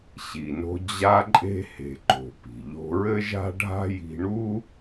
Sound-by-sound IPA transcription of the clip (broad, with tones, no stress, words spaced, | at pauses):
ɕi˩no̤˧ d͡ʑa˧ǃʼe̤˧he̤˩ ǃo̤˩ pi̤˩ ʎo̤˧ɹɘ˥ʒa̤˥ɖʱa̤˥ ji̤˧ɳu˥